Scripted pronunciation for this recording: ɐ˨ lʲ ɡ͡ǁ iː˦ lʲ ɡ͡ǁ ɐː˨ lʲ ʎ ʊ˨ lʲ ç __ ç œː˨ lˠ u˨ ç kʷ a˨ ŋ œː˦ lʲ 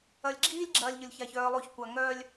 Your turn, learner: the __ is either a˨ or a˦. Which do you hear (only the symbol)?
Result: a˨